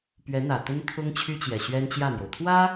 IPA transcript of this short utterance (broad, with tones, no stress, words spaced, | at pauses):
pɥɛ˧˥n̪ä˨˩t̪ə˥n t̪ʰʊ˥ŋt͡ɕʰy˥t͡ɕjɛ˨˩ ɕɥɛ˥nt͡ɕjä˥˩n̪jo˩ʊ̯ t̪ʰwä˥